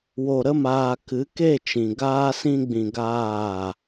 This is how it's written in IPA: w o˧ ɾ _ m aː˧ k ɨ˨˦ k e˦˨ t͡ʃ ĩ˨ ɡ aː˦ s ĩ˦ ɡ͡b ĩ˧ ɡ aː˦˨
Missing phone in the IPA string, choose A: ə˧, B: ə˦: B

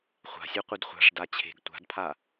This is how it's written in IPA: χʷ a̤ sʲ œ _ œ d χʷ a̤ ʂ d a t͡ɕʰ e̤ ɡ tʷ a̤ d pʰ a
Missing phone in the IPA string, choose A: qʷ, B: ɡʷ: A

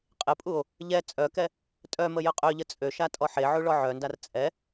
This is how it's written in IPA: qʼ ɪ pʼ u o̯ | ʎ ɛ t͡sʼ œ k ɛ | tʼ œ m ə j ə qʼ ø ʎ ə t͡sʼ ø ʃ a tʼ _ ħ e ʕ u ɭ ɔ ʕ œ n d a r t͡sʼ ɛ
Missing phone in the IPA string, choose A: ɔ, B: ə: A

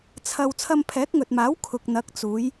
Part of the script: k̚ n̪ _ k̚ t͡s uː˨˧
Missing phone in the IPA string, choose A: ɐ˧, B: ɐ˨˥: B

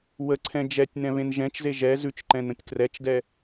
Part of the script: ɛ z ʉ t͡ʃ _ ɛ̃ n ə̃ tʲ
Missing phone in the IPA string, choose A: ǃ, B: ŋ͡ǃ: A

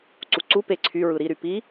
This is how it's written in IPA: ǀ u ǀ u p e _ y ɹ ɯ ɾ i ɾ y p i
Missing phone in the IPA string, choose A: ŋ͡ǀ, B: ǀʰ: B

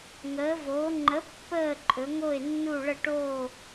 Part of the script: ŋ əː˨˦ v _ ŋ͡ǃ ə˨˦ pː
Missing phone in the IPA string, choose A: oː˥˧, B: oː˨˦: B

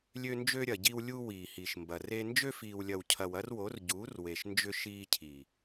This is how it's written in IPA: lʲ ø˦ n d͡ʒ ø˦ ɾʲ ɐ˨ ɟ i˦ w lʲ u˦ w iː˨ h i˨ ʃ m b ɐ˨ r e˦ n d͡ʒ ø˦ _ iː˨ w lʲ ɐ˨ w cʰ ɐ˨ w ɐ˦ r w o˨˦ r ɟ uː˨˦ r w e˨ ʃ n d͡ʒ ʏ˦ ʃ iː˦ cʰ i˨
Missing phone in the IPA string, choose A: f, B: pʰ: A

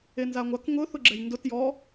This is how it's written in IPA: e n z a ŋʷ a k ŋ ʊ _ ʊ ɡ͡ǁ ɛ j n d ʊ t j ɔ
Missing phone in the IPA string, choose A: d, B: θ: B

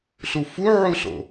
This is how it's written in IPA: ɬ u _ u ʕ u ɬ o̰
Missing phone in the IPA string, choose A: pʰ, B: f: B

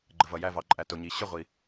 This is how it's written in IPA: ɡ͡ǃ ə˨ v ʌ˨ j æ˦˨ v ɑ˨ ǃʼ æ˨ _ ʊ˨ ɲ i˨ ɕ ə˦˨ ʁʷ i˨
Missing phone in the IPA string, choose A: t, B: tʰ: A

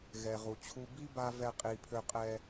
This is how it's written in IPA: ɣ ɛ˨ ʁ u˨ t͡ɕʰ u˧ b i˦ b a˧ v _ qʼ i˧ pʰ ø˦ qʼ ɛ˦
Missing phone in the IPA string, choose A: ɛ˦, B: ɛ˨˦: A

